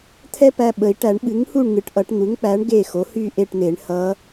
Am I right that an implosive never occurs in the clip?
no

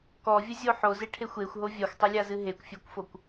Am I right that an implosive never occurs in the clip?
yes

